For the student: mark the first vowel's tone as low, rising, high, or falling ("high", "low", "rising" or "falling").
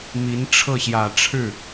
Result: rising